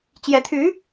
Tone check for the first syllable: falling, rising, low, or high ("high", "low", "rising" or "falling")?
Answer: rising